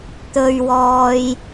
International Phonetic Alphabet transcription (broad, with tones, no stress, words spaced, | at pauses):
t̪ɵ˨ɥwɔː˨j